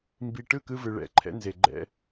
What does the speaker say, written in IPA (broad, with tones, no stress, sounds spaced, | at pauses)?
m b i˨ ʈ ɯ˦˨ k ɯ˦ v ɯ˨ ɭ ɛ̰˨˦ ǃʰ ɛ̰˦ n z e˨ ɡ͡ǃ ɛ̰˦